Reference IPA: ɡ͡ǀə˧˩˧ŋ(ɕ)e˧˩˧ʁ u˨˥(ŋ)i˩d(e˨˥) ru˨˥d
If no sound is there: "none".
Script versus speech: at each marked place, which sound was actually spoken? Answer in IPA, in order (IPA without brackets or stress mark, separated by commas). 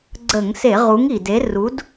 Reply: s, ŋ, e˨˥